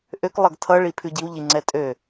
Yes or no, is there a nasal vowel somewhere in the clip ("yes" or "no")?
no